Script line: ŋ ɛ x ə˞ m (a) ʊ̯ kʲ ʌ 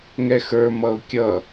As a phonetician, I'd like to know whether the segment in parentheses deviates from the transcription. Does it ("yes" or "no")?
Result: yes